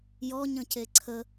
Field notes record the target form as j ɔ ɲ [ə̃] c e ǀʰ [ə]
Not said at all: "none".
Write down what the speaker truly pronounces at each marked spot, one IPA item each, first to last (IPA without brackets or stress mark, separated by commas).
ə̃, ə